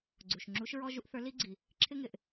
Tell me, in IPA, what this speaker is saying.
ɡ͡ǀ u˩ ʃ ŋ͡ǁ u˧˥ ʃ ɹ ɔ˥ ʒ u˥ ʔ θ ə˞˧˥ l i˥ ɡ͡ǀ i˩ | ǁʰ ɪ˥ ŋ ɪ˩ ʔ

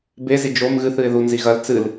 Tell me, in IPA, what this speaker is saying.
b e z i d͡ʒ o m ɣ ɨ θ ɨ ɪ̯ ð u n z i ɣ ɐ l t͡s ɨ l

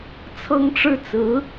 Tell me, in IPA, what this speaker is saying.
t͡sʰ ɤ˥ ŋ ʈ͡ʂ ɻ̩˥ t͡s ɹ̩˧˥

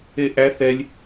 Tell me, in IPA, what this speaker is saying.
e ʔ æ θ ɛ lʲ

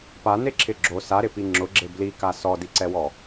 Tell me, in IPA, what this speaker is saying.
p a n e ǁʰ ɪ ɡ͡ǁ o s a ɾ ɪ p i ŋ͡ǁ ʊ ɡ͡ǁ e b l i k a s ɔ d i ǀ ɛ w ɔ

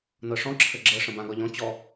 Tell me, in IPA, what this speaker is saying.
n ɤ ʂ ɔ̃ ǁʰ ə ɡ͡ǁ ɤ ʂ ə̃ b ã ɡ ɒ ʎ ɔ̃ t͡ɕ ɔ

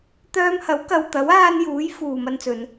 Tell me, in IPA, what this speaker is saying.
t̪ œː˧ m h ɐ˨˥ w k ɐ˨ w t̪ ɐ˨˥ w aː˧ n j uː˨˥ j f uː˨ m ɐ˧ n t͡s ɵ˨˧ n

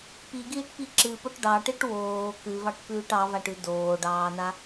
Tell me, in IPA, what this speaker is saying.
p i ɡ iː ʈ p i ǁ ɨ p o ʈ ɖ ɑ ʈ ɨ ʈ w oː k ʉ v ɑ ʈ p ʉː ʈ ɑ v a ʈ ʉ d oː ɖ ɑː n a

